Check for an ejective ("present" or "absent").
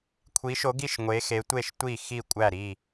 present